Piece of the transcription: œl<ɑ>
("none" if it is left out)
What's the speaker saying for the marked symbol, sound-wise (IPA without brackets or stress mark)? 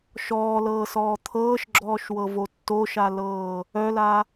a